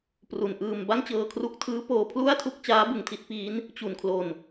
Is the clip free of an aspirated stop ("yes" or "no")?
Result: no